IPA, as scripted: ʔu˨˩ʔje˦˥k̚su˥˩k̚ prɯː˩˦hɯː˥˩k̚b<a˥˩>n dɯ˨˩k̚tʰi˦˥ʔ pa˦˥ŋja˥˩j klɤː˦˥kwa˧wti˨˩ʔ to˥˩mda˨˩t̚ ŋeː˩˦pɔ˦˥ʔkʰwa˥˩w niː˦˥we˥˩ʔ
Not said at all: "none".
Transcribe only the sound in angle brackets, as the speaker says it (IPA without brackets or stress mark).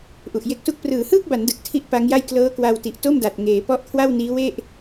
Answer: a˩˦